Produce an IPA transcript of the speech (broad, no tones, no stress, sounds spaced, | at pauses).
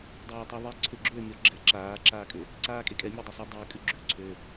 dˤ aː tˤ ʉ ðˤ e ǀʰ ʏ ɡ͡ǁ øː mʲ ɔ ɡ͡ǁ ɛ ǁ aː ǁ aː kʼ ʏ | ǀ aː kʼ e kʼ ɛ mʲ e dˤ ɛ sˤ u dˤ ʏː kʼ ʉ ɡ͡ǁ ʉ ǀʰ ø